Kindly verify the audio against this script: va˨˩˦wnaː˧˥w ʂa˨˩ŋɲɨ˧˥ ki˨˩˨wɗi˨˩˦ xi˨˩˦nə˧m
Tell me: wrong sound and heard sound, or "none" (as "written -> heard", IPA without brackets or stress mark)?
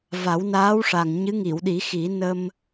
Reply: k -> ŋ